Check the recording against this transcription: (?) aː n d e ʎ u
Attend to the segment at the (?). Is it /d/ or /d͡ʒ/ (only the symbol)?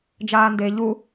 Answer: d͡ʒ